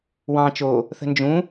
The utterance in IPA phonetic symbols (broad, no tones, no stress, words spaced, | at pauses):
wɑ̃ t͡ʃo | θə̤nd͡ʒũ